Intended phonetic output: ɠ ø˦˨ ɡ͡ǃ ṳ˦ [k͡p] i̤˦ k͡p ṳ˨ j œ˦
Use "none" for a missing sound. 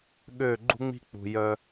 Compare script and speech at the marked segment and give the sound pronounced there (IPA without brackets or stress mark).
ŋ͡m